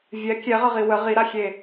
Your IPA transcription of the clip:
vʲɛ kʲɛʁəʁi wə ʁiɾaxʲe

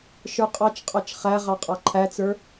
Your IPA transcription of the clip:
ʃə˞qʼɑt͡ʃqʼɑt͡ʃ χæ ʁɑqʼɑǃʰæt͡sə˞

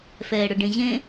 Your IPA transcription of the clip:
fɛːɽʊɖẽʑẽ

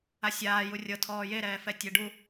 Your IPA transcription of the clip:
asʲaːju rʲɤ tʰɔːjeɾɛːfɛ tʲeɖu

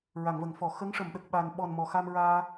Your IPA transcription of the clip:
ɹa˨˩˨ŋvə˨˩˨ŋfɔ˨˩˨ xə˧˥ŋʂə˨˩˨mɗə˨˩k̚ɓa˨˩n ɓɔ˨˩n mɔ˨˩˨xa˧m ɹaː˧

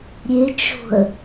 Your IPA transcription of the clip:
ɾʲet͡ʃo̤ə̯

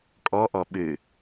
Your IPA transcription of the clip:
kʼɔʔɔ ɓɨ

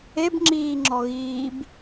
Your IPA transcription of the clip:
ebŋ͡ǁiːŋ͡ǁɔɣiːb

